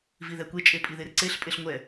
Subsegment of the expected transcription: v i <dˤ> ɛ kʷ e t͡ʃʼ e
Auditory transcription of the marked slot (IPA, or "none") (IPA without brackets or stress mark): ð